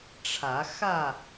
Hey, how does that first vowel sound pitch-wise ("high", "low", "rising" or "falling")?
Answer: rising